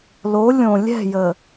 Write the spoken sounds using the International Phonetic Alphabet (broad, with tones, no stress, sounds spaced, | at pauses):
l o˨˦ lʲ õ˨ lʲ ɛ̤˦˨ j ə˨